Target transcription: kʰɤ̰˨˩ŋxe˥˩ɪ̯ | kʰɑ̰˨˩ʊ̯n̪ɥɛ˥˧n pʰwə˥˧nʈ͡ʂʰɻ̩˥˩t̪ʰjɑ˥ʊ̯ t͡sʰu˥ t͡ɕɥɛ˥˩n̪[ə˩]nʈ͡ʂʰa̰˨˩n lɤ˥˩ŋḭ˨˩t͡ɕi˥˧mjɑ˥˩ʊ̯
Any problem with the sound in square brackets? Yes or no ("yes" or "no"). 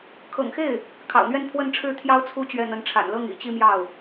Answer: yes